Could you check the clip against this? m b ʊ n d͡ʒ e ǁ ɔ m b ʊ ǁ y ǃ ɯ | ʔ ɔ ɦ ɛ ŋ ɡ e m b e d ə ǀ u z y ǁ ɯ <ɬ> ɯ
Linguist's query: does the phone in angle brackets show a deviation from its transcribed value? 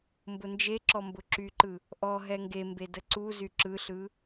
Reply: no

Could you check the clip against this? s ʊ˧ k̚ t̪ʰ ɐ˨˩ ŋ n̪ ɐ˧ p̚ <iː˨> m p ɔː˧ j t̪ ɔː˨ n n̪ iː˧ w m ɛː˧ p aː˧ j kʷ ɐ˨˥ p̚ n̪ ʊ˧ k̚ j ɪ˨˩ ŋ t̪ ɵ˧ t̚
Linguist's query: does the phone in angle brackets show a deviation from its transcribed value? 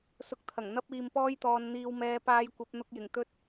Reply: no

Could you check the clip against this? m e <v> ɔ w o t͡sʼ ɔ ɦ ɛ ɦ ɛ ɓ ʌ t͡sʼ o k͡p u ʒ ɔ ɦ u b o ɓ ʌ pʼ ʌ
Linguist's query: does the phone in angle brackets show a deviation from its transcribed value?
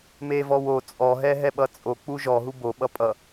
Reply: no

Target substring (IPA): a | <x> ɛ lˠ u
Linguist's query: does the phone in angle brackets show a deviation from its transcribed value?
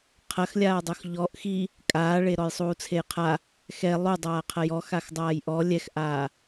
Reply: no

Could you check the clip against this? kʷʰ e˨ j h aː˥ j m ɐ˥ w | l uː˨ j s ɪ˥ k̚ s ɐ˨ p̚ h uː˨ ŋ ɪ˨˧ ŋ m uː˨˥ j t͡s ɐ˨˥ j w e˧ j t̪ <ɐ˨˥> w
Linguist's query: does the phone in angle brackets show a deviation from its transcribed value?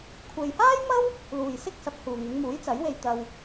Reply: yes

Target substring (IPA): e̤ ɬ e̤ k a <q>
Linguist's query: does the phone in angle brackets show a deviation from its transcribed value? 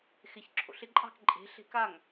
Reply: yes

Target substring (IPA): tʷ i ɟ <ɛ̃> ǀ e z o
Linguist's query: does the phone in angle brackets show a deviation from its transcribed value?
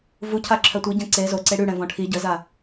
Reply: no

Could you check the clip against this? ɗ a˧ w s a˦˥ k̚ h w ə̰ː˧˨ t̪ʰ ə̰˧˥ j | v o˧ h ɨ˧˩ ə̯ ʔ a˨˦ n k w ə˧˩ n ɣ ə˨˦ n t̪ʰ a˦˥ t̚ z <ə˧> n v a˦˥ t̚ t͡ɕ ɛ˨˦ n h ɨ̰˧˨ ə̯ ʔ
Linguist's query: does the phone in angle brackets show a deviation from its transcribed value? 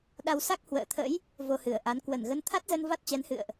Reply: no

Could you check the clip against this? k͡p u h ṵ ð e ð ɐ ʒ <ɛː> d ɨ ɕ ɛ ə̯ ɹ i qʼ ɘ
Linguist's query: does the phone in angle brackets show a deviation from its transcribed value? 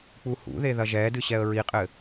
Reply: no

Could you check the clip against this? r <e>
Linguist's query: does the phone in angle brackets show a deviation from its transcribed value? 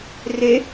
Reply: no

